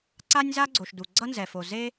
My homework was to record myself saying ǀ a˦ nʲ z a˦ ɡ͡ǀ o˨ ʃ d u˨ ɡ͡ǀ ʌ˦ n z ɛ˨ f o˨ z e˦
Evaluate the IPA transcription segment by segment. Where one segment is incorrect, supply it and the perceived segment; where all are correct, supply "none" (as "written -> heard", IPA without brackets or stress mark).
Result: none